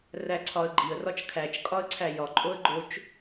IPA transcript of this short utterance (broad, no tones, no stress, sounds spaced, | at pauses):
r æ ǀʰ ɒ ə̯ ɡ͡ǃ i ə̯ r ɒ t͡ʃ kʰ æ t͡ʃ kʼ ɒ ə̯ ǀʰ æ j ɒ ǃʼ o ə̯ ɡ͡ǃ o t͡ʃ